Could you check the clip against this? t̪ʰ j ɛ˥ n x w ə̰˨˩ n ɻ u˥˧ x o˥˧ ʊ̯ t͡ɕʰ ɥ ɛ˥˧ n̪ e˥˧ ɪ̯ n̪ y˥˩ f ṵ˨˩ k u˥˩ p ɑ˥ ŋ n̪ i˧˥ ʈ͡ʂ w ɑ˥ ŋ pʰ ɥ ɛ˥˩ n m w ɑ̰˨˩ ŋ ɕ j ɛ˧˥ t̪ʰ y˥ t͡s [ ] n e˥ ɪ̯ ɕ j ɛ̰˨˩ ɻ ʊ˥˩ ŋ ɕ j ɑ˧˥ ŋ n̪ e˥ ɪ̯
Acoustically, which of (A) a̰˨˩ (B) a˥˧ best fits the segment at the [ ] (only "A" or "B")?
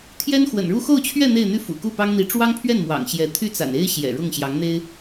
A